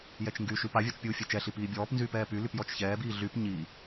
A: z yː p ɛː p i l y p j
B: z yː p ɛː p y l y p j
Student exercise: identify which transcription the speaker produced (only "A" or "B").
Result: B